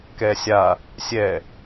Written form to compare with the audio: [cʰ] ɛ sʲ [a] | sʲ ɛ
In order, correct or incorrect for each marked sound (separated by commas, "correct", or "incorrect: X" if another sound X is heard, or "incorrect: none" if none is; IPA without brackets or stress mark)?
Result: incorrect: k, correct